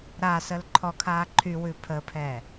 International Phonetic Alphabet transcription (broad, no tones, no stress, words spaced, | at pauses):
ɾasəl ǃʰɔkʰaːǃʰywʉ pʰəːpʰɛː